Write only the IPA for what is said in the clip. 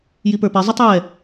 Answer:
j i p ə˞ p e zˤ ʌ tˤ j ɛ

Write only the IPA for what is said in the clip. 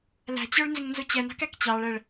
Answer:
l æ̤ t͡ɕ ə˞ ɭ n z ɪ ŋ n z u t͡ɕ ɛ n ɑ̤ k æ k t͡ɕ ɑ ɭ ɛ ɭ

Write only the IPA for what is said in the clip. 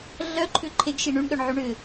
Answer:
ɮ œ ǃʰ ʏ ǃʰ e ɡ ʃ i ɳ y ɳ ɠ œ ɳ ʕ y ɳ ʏ

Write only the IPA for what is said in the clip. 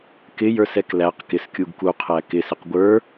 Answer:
k ɪ j ə˞ s ɛ k l æ q k ɪ s kʲ u ɡ k u qʰ æ k ɪ s ɪ q ɡʷ ə˞

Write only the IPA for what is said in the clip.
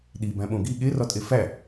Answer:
ɗ i b æ̃ ɓ õ ɡ i ɠ e r ɒ tʼ e f æ

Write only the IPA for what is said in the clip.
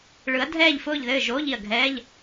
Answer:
ɭ ɯ˨˦ ɐ̯ dʱ ɛː˦˨ ʎ f ʊː˦˨ ʎ ð ɘː˦˨ ʒ oː˧˥˧ ʎ i˦˨ ɐ̯ ɡʱ ɛː˧˥˧ ʎ

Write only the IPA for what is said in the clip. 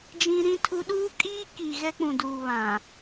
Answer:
d͡ʒ ĩ˦ ɾ ĩ˦ tʰ u˦ ɗ uː˦ kʼ iː˦ k i˨ ɣ ɛ˦ k͡p ũ˨ d uː˨ β ã˨

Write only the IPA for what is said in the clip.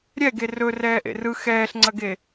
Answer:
ɾʲ ɛ ɡ e r ɵ r ɛː ʔ ḛ r ɯ x ɛː ɬ ŋ͡ǀ ɐ ɡ e

